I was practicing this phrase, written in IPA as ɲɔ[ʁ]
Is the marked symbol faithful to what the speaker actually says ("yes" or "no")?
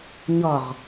yes